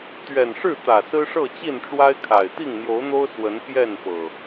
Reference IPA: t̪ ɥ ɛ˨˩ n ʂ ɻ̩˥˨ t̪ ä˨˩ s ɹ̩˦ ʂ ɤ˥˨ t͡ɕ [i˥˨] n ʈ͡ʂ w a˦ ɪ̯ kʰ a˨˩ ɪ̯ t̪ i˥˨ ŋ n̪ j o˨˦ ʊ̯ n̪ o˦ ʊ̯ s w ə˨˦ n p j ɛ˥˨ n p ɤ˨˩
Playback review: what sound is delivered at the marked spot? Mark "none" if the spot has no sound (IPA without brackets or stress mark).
i˥˨